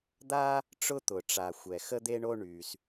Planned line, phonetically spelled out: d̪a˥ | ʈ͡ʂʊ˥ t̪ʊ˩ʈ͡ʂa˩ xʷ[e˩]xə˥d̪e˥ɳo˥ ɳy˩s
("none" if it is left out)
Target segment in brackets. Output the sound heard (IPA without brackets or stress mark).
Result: ɛ˩